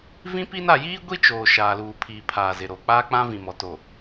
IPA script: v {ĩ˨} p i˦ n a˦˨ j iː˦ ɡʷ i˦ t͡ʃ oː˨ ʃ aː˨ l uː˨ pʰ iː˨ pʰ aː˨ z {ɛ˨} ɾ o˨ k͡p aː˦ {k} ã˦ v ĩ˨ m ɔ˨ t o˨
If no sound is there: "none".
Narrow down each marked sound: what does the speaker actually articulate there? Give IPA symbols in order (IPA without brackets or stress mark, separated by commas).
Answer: ĩ˦, ɪ˨, k͡p